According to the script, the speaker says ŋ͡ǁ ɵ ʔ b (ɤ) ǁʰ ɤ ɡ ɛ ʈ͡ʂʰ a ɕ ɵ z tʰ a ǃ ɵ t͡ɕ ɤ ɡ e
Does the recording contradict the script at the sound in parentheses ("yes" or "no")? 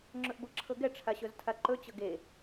no